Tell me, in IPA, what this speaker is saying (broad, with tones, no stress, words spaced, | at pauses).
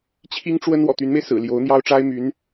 t͡ɕʰi˥ŋʈ͡ʂwə˥n wɔ̰˨˩t̪y˧˥nme˧ɪ̯ sɹ̩˨˩ljo˧˥ʊ̯n̪jɑ˥ʊ̯ ʈ͡ʂa˥ɪ̯my˧˥n